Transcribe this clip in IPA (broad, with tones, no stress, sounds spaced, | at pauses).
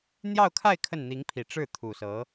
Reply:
n̪ j ɑ˥˧ ʊ̯ kʰ a˥˧ ɪ̯ kʰ ə˥˩ n n̪ i˧˥ ŋ pʰ i˨˩ ʈ͡ʂ ɻ̩˥˩ t̪ʰ u˨˩ s ɤ˧˥